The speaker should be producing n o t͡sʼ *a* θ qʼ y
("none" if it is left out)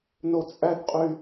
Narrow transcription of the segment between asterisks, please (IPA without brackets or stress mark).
æ